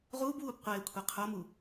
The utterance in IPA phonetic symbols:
ʁ uː b w uː b qʷ eː kʷʰ e qʰ o m u

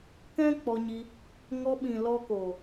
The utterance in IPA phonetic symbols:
k ɛ̃˦ k͡p ɔ˧ ɲ i˧ | ŋ ɔ˧ ɓ ĩ˨ l ɔ˧ k o˨

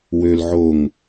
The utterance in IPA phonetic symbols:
w ø l ʕ o ŋ

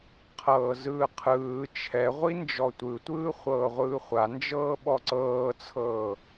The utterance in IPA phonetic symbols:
qʰ ɤː z ɯː qʰ ɯː t͡ʃʰ ɛ ʁʷ i n d͡ʒ ɔ tʷ ɯ tʷ ɯː χʷ ɤː ʁʷ ɯː χʷ a n d͡ʒ ɤː ɓ ɔ ǀ ɤː t͡sʰ ɤː

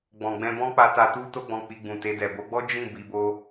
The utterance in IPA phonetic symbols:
ɡ͡b ɔ̃˨ ɡ͡b ɛ̃˧ b ɔ̃˦ k͡p a˧ t a˧ t u˦ t o˦ ɡ͡b ɔ̃˧ k͡p i˧ ɡ͡b ũ˨ t e˧ d ɛ˨ b o˨˦ ɡ͡b ɔ˦ d͡ʒ ĩ˦˨ b i˧ b o˦

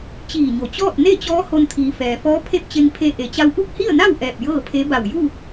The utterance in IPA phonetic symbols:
t͡ɕ iː˧˩ ɲ o˩ t͡ɕ ɔː˥˨ t̚ n e˥˨ t͡ɕ ɔː˧˥ h o˧ n t̪ʰ iː˩˧ f ɛː˩ f ɔː˧˥ pʰ e˥˨ p̚ t͡ɕ e˧ ŋ pʰ e˧ ʔ e˩ t͡ɕ a˧ w ʔ u˥˨ k̚ h i˥˨ ə̯ n a˥˨ w ʔ ɛː˧˩ p̚ j ɤː˥˨ pʰ e˧˥ b a˧˩ w j u˥˨

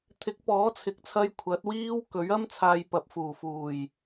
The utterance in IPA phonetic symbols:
t̪ʰ ɪ˨˥ k̚ p ɔː˨˥ t͡sʰ ɪ˨˥ k̚ t͡sʰ ɐ˧ j kʷʰ ɐ˨˥ t̚ w iː˥ w k ɵ˨˥ ɥ ɐ˥ m t͡sʰ aː˧ j p ɐ˨ p̚ f uː˨˩ f uː˨˩ j

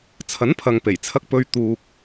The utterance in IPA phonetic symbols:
t͡sʰ ɐ˨˥ n pʰ ɐ˨ ŋ p e˨˩ j t͡sʰ ɐ˧ k̚ p ɵ˧ ɥ t̪ uː˨ k̚

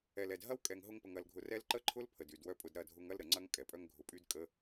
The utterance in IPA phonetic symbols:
ɛ˨ l ɛ˨ d ɦ ɐ˦ w kʼ ɛ˨ ŋ ɦ ʊ˧ ŋ p ə˨ ŋ ɐ˨ l ɡʱ ʊ˨ r ɛ˧ l ǃ ə˦ ǃʰ ʊ˦ l pʰ ə˨ d y˨ d w œ˦ pʼ ʊ˧ d ɾ ɐ˦˨ dʱ ʊ˧ ŋ ɐ˦ l ɾ ə˨ ŋ͡ǀ ɐ˦ ŋ kʼ ɛ˨ pʼ œ˦ ŋ ɡʱ ʊ˧ pʼ y˦ d kʼ ə˦

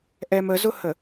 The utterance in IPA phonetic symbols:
ʔ ɛ m ə z ʊ h ə

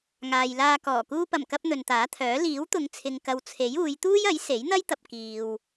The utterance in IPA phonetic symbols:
ŋ aː˨ j l aː˧ k ɔː˨˩ k uː˧ p ɐ˨˩ m k ɐ˧ p̚ n̪ ɵ˨ n t̪ aː˨˥ t̪ʰ œː˨˥ l iː˨˥ w t̪ ʊ˨˧ ŋ t͡sʰ ɪ˨ ŋ k ɐ˨ w t͡sʰ e˨˥ j uː˨˧ j t̪ uː˥ j ɐ˨˥ j s e˨˥ j n̪ ɐ˥ j t̪ ɐ˧ p̚ k iː˨ w

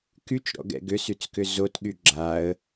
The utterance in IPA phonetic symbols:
k y t͡ʃ ɾ ɔ̰ ɡ ɛ̰ ɡ ʏ s y t͡s k ʏ z o t ɠ y ɡ͡ǁ a ə̯

